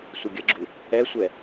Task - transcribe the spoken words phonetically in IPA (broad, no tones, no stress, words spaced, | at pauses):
sʷɪɡʲəɡ͡ǁu | ɛsʷɛ